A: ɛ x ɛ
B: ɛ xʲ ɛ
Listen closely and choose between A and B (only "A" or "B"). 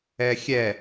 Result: B